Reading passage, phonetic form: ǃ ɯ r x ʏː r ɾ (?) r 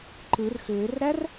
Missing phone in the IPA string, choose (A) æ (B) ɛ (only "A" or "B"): A